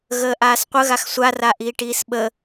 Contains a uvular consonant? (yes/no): yes